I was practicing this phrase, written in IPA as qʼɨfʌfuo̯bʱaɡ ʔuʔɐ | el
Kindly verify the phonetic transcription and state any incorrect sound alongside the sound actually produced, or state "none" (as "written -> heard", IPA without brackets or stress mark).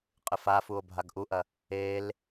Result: ʌ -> a